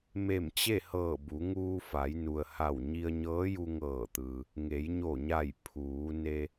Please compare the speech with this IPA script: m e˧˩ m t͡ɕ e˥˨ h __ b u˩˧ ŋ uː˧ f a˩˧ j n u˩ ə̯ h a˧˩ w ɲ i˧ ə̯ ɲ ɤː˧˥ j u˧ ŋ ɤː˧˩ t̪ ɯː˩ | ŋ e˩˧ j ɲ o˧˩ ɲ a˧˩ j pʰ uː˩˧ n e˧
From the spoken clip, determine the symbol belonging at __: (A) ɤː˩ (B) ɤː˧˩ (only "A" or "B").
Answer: B